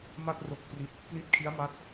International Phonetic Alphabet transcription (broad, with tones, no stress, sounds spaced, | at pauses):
m a˥˩ t̚ r o˦˥ k̚ p r i˦˥ t̚ | p l i˦˥ t̚ kʰ i˦˥ a̯ m a˦˥ t̚